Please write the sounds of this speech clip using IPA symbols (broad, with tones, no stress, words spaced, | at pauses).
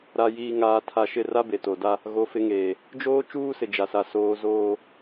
ɾa˨jiː˨ŋaː˨tʰa˨ ʃɪ˦˨ra˦be˨ to˨da˦ | ɣo˨˦fɪ˨˦ŋeː˨ | d͡ʒoː˦ t͡ʃuː˦sɪ˨d͡ʒa˨sa˨ soː˨zoː˨